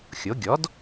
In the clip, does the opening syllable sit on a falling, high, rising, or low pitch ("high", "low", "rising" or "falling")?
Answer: rising